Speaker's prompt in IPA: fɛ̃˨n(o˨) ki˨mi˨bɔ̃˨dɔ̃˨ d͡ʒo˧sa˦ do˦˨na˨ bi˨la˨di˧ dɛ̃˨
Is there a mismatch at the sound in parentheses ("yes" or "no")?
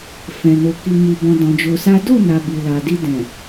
no